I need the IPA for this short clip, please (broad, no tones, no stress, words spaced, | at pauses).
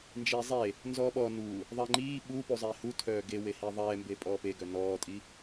nd͡ʒiːzˤe | nzɔːɓɔ nu | ðˤɛŋ͡ǃiː ɓu puzˤiːhutʰœː ɡewehiː ðˤɛːmbe pʼɔːpeɡœ nɔːtʼi